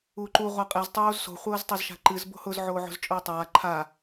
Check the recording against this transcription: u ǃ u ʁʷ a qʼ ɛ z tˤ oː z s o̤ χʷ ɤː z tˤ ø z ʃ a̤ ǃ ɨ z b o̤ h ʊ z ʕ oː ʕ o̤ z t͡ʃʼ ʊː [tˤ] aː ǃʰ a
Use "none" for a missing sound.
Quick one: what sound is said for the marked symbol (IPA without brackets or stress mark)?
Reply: tˤ